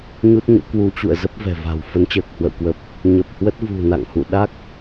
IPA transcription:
ɲu˦˥t̚ɲo̰˧˥ kwu˨˦t͡ɕṵ˧˨ə̯ zə˦˥p̚ vɛ̤˨˩va̤˨˩w fə˨˦nt͡ɕəː˨˩k̚hwə̰˧˨wkwə˨˩p̚ | ɲə˨˩p̚hwə˦˥t̚ vṳ˨˩ na̰˧˨ŋhṵ˧˨ ɗa˦˥k̚

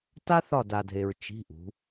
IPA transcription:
ta˥θɒ˦˨d a˨dʱe˨ɹ t͡ʃi̤˧˥˧ʔṳ˨˦

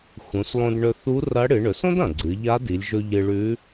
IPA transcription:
xũ˩˧slˠõ˧d ɳɵ˧θu˧˥ rɐ˧˥ ɽɨ˩˧ɳɵ˩˧sõ˥dɐ̃˩ ɡ͡ǀɨ˩˧ʎa˧˥di˩˧lʲʒɵ˧ ʎɨ˧ɭʉ˧˥

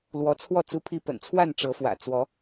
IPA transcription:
lwɔ˨˦t͡sʰwɔ˥˨ t͡su˦pʰi˦ pə̰˨˩nt͡sʰwa˥˨n ʈ͡ʂɤ˨˦fwä̰˨˩ t͡swɔ˨˦

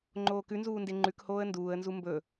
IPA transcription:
ŋ͡ǃoːkʉnzuːnde ŋ͡ǃʉkhoːə̯ nduːə̯nzu mbɵ

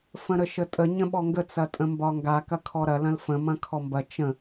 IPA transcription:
fə̃ɾəʃətʼə ɲə̃ɓɔŋɡə t͡sɐtʼə̃mbɒŋɡa kɐkʰɔɾɐ lɐ̃lfə̃ mɐ̃kʰɔmbɐ t͡ʃə̃

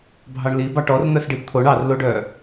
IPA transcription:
bʱɑɳli bɑʈɔrn̪œs ɖibt̪ʰoɳ ɑr loɖœ

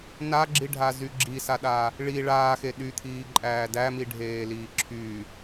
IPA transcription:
naɡ͡ǁiɖʱa zyɡ͡ǁisaɗa | ɭi ɭaːxe ɗyt̪ʰiː ǃʼæːdæmi ɖʱeːliːǁʰy

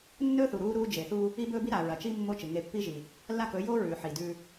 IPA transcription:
nːɵː˦θu˨ ɾuː˦ɾuː˦ d͡ʒe˨θuː˦ | i˦bɵː˦bi˦ ɾa˨ɹɐ˨t͡ʃi˦ mːo˦t͡ʃɨ˨ ŋe˨˦pːi˦ʒi˨ | lːa˦˨kɵ˨˦joː˦ ɹʉː˨ ħi˨dʉ˦

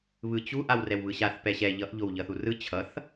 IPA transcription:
βɯt͡ɕu ʔawrɛwβɯɕaθ pɛɕɛ ʎʌʔ ʎowʎʌθurɯ t͡ɕʰʌθ

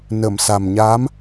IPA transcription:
nə˨˩˨msa˨˩m ɲa˧˥m

